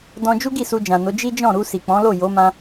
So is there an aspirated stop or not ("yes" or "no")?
no